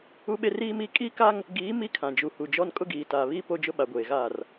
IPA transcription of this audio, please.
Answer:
u˦ ɓ e˦ r iː˦ m iː˦ kʼ i˦ k a˦ ŋ | ɡ iː˨˦ m i˦ kʰ ã˨ d͡ʒ u˨ h u˨ d͡ʒ ɔ˦ n kʼ ʊ˦ ɡ iː˨ t aː˨ β iː˦ p o˦ d͡ʒ ʊ˦ ɓ a˨ ɡʷ eː˨ ɣ aː˦˨ r

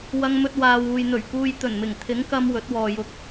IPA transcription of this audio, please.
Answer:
w ɐ˧ ŋ m ɵ˧ t̚ w aː˨ w uː˨ j n̪ ɵ˨˩ ɥ k uː˧ j t̪ ɵ˨˩ n m ɪ˨˩ ŋ t̪ʰ ɪ˨˥ ŋ k ɐ˧ m w ɵ˨˥ t̚ w ɔː˨ j ʊ˧ k̚

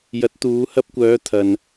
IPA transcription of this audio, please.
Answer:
j ɐ˨˥ t̚ t̪ uː˨˧ h ɐ˧ p̚ kʷ œː˨˧ t̪ʰ ɐ˨ n

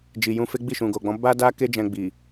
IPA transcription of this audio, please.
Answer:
d͡ʒ i˨ j ũ˧ f e˦ ɡ͡b i˦˨ ʃ ũ˨ ɡ o˨ ɡ͡b ɔ̃˨˦ b a˦ d a˦ k e˦ d͡ʒ ɛ̃˧ ɡ͡b i˨

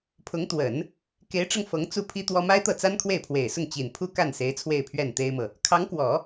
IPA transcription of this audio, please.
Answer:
pʰ ʊ˧˥ ŋ t̪ w ə˨˩˦ n | k e˧˥ ɪ̯ ʈ͡ʂ ɤ˧ ŋ f ɤ˧˥ ŋ t͡s u˥˩ pʰ i˥ t̪ w ɔ˥ m a˥ ɪ̯ t̪ ɤ˥˩ t͡s a˥ n kʰ w e˥˩ ɪ̯ pʰ w e˨˩ ɪ̯ s ʊ˥˩ ŋ t͡ɕ i˨˩ n pʰ u˥ k a˥˩ n s e˧˥ ɪ̯ t͡sʰ w e˥˧ ɪ̯ pʰ ɥ ɛ˥˩ n t̪ e˥ ɪ̯ m ɤ˨ | kʰ ɑ˧˥ ŋ k w ɔ˨˩˦

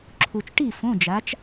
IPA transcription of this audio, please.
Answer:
ǁʰ u˨ t͡ʃ ʈ i˥˨ f õ˧˥˧ d͡ʒ a˨˥ t͡ʃ

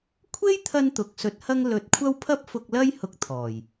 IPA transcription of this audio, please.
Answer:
kʷʰ e˥ j t̪ʰ ɐ˧ n t̪ ʊ˨ k̚ s ɵ˨˥ t̚ h ɐ˥ ŋ l ɵ˨˥ t̚ kʷʰ ɐ˥ w pʰ ɐ˥ p̚ f ʊ˧ k̚ l ɐ˥ j h ʊ˧ k̚ t̪ʰ ɔː˨˩ j

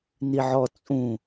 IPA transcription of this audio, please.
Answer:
n i ʕ ɔ t͡sʼ ũ

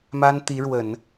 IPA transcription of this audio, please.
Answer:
m a˥ n t̪ i˧˥ ɻ w ə˨˩˦ n

